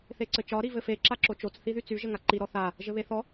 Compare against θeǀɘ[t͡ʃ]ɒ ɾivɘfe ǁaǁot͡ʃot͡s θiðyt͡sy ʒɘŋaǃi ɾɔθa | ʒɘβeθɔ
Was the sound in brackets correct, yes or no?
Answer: yes